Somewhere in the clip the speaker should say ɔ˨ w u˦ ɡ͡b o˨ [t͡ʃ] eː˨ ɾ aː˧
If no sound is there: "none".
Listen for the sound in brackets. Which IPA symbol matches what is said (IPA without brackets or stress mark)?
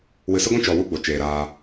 t͡ʃ